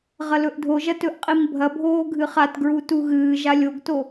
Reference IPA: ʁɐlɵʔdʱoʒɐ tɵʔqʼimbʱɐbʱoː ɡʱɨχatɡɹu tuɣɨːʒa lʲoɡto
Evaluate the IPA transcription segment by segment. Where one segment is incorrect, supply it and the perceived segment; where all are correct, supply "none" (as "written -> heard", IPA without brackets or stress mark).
none